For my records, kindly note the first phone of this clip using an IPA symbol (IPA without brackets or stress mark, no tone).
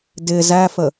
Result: d